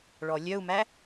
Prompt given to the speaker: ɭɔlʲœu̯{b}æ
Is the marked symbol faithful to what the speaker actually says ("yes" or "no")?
no